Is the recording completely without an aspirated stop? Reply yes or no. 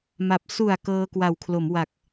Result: no